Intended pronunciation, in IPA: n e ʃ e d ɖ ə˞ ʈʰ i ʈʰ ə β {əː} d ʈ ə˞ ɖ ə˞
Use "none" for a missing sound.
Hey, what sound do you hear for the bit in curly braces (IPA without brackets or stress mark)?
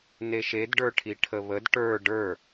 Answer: ə